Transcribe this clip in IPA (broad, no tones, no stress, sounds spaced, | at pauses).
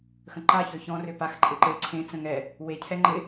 x ə̃ ǃ a ç ø ç ɔ̃ r ø p a x ǃʼ ɪ ǃ e ǀʰ ẽ t͡s ə̃ ŋ ɛ | w e cʰ ɛ ŋ͡ǃ ɪ